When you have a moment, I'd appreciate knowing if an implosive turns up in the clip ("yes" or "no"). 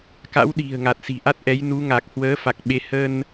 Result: yes